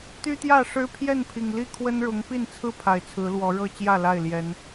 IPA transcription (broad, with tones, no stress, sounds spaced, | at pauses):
t̪ y˦ t̪ j ä˥˨ ʂ ɻ̩˦ pʰ j ɛ˥˨ n pʰ i˨˩ ŋ l i˥˨ kʰ w ə˦ n ɻ ʊ˨˦ ŋ p i˥˨ n t͡sʰ ɹ̩˥˨ pʰ a˨˩ ɪ̯ t͡sʰ ɹ̩˨˦ l w ɔ˨˦ ɻ ɤ˥˨ t͡ɕ j ä˥˨ l a˥˨ ɪ̯ l j ɛ˨˦ n